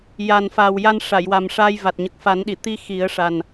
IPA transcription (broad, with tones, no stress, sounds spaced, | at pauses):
j a˨˩ n f aː˨˩ w j a˧ n ʂ a˨˩˨ j w a˨˩ m ʂ aː˧ j v a˨˩ t̚ ɲ ə˨˩ k̚ f a˨˩˦ n ɗ i˨˩˨ t̪ i˧ x i˨˩˦ ə̯ ʂ a˨˩ n